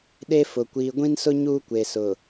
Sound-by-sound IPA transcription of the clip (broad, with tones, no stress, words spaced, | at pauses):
ɗe˦fʊ˨ kʷiː˨ɡʷĩ˦nsʊ˦ ɲuː˦kʷe˨sʊ˨